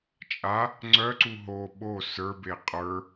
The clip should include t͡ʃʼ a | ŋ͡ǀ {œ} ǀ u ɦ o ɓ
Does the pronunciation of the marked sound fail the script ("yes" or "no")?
no